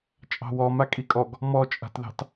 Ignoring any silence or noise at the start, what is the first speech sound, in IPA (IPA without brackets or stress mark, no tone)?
t͡ʃʼ